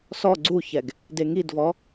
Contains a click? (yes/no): yes